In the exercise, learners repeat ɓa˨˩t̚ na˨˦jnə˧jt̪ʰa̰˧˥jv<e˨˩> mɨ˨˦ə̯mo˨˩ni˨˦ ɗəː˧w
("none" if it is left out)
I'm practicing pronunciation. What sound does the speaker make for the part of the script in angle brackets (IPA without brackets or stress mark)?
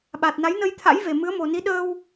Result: e˨˩